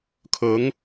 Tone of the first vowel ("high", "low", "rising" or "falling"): rising